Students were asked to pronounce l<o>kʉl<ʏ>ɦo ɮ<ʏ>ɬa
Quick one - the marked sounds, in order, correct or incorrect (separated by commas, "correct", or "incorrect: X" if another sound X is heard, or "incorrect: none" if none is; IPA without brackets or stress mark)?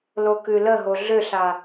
correct, incorrect: ə, correct